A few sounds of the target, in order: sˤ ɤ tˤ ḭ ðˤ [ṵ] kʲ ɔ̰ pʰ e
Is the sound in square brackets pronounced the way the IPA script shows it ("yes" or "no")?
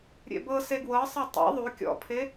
no